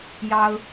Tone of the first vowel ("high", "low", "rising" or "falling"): high